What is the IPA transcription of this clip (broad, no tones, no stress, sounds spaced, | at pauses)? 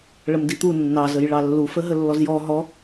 ɭ ə m d i t̪ u nː ɑ z ə j ɭ ɑ lː u f ə ɦ ə lː ɔ z j ɔ ɦ ɔ